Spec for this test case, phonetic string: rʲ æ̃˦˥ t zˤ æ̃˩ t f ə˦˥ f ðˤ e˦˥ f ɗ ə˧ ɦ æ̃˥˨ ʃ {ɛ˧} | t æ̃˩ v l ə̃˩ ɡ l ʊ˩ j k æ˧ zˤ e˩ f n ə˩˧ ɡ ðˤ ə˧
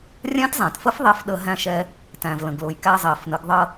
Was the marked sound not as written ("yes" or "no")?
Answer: no